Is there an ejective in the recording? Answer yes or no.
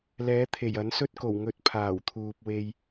no